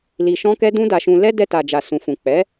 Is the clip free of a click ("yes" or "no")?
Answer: yes